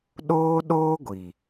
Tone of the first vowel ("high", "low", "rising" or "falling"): high